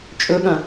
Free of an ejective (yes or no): no